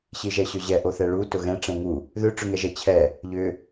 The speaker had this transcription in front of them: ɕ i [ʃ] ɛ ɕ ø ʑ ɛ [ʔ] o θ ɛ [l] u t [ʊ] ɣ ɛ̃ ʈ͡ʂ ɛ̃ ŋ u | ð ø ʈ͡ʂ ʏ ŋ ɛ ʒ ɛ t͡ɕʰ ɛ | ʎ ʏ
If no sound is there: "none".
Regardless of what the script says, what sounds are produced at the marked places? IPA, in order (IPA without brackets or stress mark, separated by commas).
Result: ʒ, ʔ, ɭ, ʊ